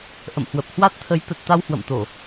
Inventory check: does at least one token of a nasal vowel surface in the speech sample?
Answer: no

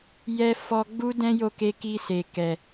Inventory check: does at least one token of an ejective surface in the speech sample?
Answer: no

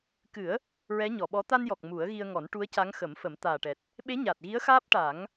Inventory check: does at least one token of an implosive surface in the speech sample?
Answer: yes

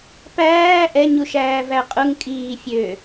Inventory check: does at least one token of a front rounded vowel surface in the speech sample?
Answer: yes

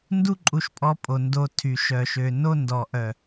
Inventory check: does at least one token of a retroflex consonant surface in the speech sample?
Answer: no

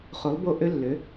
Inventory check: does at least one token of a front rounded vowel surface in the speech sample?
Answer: yes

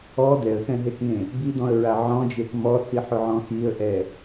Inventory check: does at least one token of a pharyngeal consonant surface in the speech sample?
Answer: yes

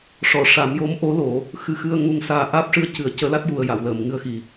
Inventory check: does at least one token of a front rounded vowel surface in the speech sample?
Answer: no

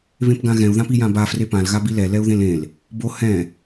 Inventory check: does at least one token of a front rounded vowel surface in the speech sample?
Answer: no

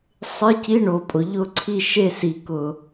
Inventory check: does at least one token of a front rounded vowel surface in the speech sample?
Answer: no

